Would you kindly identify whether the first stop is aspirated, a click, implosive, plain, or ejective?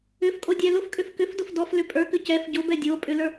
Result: ejective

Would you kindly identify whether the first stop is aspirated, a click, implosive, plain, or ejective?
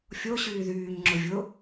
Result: click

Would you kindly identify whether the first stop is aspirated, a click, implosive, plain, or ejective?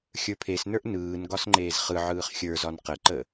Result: aspirated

